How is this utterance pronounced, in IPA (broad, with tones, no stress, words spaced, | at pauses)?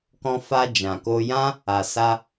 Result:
kɔ̃˧fa˧ d͡ʒã˨ko˧jã˦ | a˨sa˧